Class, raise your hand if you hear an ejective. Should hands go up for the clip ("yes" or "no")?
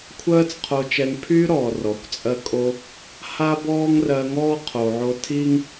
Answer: yes